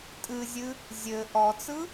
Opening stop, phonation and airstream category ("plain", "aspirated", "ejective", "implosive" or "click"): ejective